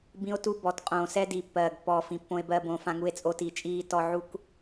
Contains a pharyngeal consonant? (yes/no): yes